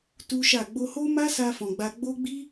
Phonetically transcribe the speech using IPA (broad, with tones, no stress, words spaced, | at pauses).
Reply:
tu˦ʃa˦˨ ɡ͡bo˧ho˦ma˦sa˧ fɔ̃˨ɡ͡ba˧ ɡ͡bo˦ ɡ͡bi˦